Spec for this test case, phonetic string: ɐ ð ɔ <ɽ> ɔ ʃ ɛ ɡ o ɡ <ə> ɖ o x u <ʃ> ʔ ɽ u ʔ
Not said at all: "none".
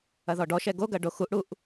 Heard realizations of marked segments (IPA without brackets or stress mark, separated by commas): ɖ, ɐ, none